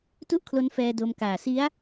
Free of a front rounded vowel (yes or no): yes